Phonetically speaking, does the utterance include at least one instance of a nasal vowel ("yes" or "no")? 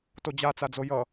no